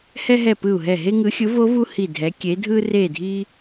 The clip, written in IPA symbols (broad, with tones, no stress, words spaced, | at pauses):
hɛ˦ɦɛ˧˩ pɯ˧˩u̯ɦɛ˧˩ɦe˦ŋɯ˨˦ xʲɯ˨˦vo˨˦vu˦ hi˧˩dʱɛ˨˦kʲe˨˦ dʱɯ˦re˧˩dʱi˦